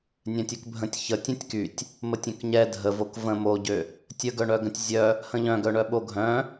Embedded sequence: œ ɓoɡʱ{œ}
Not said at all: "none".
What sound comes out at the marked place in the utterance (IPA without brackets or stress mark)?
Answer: œ̃